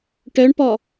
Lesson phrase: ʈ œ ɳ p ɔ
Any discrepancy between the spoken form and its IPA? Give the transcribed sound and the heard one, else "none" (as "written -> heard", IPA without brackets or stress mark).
none